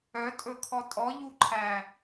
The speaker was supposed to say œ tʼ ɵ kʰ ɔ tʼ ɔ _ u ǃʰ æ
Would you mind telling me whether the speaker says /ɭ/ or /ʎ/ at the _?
ʎ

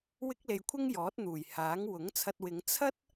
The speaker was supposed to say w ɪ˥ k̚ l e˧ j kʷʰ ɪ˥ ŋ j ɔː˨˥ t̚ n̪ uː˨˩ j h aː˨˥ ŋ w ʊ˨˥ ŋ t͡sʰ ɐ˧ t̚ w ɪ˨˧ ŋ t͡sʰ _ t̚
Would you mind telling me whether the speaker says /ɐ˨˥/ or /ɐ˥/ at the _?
ɐ˥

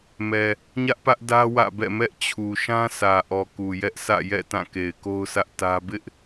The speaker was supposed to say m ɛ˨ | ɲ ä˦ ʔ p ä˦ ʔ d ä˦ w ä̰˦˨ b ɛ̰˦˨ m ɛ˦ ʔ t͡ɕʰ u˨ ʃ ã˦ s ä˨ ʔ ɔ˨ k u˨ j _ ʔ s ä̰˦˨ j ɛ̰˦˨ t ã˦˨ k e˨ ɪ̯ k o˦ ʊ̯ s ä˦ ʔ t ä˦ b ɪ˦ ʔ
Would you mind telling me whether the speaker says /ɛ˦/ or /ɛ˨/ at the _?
ɛ˦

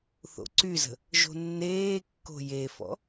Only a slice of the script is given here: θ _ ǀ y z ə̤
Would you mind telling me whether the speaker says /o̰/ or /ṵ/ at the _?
o̰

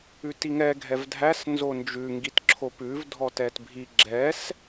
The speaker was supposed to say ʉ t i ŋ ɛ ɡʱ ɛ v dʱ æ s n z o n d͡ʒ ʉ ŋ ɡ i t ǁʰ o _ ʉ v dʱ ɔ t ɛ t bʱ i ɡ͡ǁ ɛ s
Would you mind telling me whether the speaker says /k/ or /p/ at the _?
p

